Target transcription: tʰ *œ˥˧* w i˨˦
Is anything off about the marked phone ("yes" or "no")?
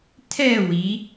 yes